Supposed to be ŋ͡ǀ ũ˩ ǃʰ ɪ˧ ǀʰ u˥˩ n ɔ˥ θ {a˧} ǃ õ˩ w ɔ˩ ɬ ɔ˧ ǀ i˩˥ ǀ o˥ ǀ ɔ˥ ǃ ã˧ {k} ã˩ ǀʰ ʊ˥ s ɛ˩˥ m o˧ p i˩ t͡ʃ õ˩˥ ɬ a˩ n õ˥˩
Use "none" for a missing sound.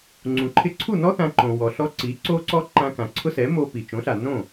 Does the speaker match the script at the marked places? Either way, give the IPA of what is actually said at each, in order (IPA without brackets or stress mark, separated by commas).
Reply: ã˧, k